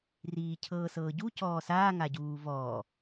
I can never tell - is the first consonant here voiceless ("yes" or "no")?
no